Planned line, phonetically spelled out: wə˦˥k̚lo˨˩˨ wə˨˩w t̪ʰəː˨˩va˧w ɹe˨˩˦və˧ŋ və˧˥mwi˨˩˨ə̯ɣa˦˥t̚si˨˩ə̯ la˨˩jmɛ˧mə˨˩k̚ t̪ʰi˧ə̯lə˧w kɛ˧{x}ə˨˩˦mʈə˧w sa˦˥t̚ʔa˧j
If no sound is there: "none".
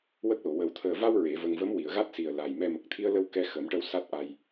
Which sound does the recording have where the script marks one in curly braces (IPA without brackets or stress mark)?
x